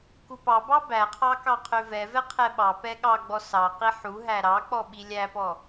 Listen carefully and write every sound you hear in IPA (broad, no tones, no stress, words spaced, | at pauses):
kupɑbɑ bæqʰɑ kɑqʰøvɛvɛ qʰɛɓɑpɛ ɠɑɡ͡bɔ sɑqi ħuɦæ ɾɑk͡pɔ ɓilʲæpɔ